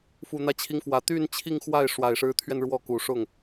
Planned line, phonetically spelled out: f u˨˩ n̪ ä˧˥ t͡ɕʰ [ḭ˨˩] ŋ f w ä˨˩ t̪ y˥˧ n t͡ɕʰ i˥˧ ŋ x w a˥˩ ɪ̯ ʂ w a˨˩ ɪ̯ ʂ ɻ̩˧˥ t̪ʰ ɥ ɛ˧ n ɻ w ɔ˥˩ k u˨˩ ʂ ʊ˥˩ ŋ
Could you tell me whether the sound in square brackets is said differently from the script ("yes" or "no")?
yes